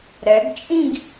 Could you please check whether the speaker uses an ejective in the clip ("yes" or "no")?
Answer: yes